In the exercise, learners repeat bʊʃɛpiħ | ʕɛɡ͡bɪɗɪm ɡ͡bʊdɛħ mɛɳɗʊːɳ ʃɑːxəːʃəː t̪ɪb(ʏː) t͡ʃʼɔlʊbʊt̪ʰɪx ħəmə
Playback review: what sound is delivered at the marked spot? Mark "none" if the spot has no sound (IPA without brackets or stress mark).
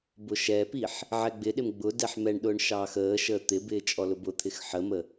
ɪː